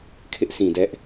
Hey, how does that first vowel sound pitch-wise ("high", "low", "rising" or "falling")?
high